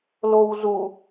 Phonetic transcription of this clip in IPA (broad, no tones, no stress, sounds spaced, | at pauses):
l o w z u